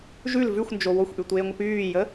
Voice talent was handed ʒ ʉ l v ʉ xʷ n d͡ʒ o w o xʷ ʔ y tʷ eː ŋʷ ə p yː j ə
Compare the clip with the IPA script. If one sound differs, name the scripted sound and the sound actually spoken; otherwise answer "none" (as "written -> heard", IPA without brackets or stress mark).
none